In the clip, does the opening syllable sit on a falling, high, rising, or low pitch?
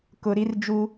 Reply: low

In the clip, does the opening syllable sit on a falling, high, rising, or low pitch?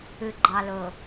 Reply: low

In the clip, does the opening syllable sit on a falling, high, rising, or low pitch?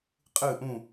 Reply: falling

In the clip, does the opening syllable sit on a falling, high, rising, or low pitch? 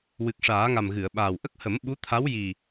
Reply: low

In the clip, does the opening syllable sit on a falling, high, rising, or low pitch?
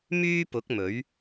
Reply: high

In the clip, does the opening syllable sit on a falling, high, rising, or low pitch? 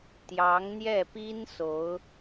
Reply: rising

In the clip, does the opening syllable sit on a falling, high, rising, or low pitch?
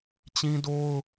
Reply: high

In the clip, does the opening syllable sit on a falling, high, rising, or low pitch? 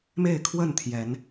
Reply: falling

